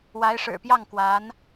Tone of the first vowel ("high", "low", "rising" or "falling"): rising